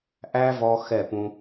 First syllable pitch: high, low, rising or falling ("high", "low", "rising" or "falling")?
high